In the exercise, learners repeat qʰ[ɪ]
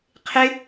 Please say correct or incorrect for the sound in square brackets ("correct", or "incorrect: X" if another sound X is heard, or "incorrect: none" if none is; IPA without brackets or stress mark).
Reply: correct